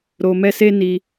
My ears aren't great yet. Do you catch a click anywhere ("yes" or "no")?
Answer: no